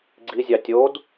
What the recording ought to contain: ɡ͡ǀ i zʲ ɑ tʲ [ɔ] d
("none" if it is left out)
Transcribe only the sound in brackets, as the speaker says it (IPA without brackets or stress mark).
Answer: o